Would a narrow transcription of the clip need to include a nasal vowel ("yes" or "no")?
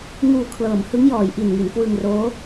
no